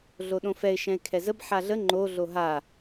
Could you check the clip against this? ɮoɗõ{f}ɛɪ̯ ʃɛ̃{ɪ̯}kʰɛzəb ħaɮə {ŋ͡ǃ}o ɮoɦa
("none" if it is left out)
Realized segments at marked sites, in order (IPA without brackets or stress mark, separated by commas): f, ɪ̯, ŋ͡ǃ